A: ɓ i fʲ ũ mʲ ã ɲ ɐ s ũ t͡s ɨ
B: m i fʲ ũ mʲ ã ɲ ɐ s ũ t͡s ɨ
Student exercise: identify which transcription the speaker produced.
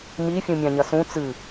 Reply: B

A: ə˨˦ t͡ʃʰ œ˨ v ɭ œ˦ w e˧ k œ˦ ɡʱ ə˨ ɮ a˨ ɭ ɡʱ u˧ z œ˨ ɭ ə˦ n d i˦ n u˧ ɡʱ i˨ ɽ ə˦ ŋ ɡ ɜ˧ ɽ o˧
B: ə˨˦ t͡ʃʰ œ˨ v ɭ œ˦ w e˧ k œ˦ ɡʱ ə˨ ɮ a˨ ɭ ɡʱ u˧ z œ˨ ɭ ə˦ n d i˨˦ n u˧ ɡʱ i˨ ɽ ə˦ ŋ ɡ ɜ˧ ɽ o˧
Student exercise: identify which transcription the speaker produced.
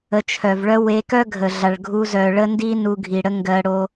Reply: A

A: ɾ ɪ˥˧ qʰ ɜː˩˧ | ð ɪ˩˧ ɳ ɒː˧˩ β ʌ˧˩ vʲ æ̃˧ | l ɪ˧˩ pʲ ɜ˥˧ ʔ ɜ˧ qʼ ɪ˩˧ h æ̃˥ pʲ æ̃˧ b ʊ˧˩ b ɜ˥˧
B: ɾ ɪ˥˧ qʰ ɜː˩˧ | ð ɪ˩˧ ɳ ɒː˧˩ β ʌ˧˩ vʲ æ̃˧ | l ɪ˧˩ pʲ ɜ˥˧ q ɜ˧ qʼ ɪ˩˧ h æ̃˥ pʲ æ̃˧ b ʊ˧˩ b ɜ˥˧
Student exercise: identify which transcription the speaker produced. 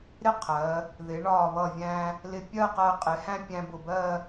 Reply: B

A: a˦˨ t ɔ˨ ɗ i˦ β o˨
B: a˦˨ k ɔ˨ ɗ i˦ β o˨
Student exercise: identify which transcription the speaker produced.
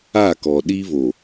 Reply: B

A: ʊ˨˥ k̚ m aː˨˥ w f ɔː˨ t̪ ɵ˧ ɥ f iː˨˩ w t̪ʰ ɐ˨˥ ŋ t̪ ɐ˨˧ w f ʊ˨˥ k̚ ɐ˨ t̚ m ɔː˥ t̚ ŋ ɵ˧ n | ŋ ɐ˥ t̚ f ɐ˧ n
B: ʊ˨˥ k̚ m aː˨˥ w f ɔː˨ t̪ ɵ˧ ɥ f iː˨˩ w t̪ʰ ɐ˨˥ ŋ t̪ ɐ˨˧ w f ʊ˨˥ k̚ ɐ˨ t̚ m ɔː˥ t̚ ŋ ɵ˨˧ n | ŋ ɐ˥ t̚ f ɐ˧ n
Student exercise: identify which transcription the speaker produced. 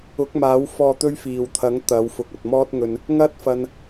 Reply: A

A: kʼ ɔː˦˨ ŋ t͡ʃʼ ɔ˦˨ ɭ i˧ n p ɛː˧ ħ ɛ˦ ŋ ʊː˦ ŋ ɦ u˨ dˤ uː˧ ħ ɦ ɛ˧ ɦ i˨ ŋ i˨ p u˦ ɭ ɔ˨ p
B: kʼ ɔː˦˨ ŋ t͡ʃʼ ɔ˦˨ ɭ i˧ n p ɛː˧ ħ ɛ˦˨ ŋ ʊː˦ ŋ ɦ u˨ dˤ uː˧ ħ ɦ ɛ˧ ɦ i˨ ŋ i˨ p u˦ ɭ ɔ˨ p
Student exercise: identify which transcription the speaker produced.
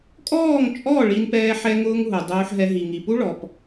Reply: A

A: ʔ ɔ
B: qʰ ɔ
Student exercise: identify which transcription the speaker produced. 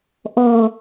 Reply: A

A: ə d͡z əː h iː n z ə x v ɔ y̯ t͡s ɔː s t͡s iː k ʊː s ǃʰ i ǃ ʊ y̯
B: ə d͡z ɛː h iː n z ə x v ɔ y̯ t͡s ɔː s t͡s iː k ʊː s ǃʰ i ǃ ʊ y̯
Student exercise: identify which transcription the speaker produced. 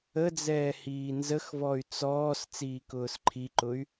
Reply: B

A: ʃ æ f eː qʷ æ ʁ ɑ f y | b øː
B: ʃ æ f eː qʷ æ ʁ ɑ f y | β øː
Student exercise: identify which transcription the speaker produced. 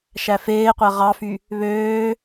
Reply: B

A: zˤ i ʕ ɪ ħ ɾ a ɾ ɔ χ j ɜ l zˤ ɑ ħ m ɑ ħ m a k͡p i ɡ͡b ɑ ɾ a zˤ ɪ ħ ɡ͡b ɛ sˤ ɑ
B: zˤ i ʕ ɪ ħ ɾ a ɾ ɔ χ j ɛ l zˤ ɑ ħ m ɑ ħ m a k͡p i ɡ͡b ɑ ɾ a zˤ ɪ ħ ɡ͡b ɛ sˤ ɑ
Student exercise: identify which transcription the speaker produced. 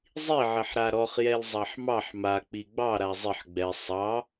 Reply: B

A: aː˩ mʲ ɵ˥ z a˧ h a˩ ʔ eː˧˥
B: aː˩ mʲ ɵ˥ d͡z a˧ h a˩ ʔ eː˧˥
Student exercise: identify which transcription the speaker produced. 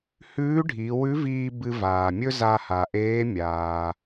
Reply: A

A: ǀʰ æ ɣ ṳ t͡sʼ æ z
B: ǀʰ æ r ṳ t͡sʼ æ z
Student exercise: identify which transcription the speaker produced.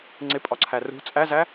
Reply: B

